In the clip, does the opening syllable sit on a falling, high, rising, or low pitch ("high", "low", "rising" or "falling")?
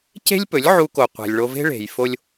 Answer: high